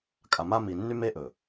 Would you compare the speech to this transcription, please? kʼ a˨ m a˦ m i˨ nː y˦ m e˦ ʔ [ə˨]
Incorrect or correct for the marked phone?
incorrect: ɵ˨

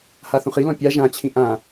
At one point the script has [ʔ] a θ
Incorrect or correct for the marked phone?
incorrect: h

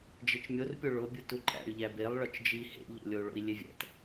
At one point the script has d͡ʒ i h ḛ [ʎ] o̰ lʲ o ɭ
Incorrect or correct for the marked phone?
correct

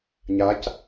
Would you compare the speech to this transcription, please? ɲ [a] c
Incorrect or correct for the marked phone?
correct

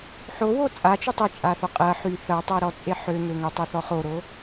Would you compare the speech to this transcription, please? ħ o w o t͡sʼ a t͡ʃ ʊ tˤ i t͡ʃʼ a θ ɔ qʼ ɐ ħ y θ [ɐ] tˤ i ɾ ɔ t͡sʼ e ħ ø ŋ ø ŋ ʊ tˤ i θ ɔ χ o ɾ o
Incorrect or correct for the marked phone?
correct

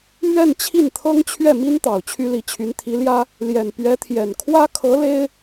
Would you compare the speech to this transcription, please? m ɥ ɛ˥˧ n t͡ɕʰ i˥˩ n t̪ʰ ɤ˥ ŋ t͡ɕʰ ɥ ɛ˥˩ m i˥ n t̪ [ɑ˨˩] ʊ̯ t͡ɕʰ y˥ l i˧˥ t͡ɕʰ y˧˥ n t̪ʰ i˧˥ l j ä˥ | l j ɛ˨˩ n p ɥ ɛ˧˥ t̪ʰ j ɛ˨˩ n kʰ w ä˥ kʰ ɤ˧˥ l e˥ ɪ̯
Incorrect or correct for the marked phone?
correct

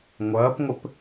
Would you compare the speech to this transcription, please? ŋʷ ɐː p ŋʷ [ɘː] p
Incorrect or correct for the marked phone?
incorrect: ɘ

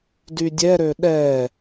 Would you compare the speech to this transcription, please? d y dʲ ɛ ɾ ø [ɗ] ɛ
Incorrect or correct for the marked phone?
correct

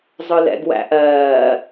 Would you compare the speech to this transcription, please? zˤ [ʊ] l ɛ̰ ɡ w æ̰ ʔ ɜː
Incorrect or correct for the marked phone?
correct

